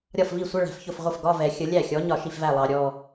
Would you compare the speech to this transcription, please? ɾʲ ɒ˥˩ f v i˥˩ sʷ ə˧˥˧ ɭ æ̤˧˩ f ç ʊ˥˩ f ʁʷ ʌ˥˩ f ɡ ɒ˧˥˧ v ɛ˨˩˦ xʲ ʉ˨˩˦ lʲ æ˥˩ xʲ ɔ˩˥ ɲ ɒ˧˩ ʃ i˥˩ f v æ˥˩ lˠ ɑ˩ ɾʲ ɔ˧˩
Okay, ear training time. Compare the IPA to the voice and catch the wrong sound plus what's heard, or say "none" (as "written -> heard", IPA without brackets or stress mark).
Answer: ʉ˨˩˦ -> ə˨˩˦